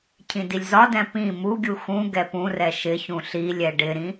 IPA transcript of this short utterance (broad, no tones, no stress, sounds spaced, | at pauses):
cʰ ĩ d i lʲ z ɒ d ɛ̃ p ĩ m u ɡʲ u x ũ ɡ ɛ p ũ r ɛ ʃ ɪ ç ũ ɬ i lʲ ɛ ɖ ɪ ɾ ĩ